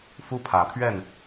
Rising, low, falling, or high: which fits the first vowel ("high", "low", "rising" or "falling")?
high